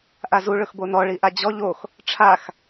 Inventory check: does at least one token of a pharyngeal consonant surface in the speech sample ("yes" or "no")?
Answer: no